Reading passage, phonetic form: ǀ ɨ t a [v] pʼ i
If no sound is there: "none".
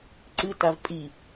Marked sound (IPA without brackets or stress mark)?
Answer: v